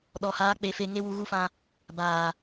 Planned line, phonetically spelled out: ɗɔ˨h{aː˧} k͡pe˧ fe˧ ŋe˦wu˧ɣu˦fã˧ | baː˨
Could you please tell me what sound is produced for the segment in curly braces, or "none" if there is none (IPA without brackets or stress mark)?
aː˧